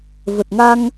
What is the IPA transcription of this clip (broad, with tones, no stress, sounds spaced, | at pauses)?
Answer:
v ə˨˩ t̚ ŋ a˧ ŋ